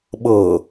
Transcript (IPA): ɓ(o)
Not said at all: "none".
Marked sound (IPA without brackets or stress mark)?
ɤ